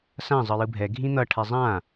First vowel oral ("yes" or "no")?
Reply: no